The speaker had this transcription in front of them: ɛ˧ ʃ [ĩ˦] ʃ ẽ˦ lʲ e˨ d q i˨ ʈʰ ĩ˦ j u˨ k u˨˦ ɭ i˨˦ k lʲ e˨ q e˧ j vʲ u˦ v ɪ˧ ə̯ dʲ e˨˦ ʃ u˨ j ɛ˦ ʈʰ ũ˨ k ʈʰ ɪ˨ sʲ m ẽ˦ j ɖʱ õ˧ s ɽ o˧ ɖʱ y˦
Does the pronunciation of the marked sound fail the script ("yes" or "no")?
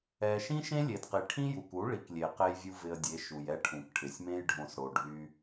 no